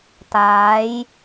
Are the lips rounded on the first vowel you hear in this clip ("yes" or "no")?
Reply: no